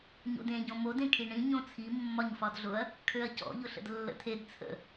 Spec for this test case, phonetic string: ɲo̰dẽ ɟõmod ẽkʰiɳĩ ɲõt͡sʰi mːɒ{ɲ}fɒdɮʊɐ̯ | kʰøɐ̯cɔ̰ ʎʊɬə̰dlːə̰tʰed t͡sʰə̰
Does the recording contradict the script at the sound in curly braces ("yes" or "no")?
no